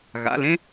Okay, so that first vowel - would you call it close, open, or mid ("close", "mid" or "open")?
open